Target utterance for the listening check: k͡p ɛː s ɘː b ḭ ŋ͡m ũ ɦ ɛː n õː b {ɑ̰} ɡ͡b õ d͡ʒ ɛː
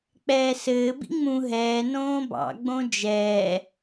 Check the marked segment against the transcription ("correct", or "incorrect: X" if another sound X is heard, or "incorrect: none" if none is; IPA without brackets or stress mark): correct